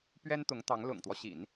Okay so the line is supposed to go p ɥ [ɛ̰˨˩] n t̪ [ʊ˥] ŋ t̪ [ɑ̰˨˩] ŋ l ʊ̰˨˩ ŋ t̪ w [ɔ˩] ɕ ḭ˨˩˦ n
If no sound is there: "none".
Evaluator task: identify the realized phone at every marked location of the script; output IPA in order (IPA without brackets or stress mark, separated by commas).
ɛ˥, ʊ˧˥, ɑ˧˥, ɔ˦